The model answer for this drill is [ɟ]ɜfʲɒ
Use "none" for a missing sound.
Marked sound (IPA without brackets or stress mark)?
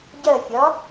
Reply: ɟ